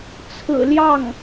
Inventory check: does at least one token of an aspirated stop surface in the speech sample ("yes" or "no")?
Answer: yes